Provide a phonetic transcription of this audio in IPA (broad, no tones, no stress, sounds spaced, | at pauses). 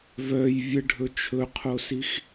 v œ j vʲ ə ɖʱ ɵ t͡ʃʰ ɵ qʰ o s i x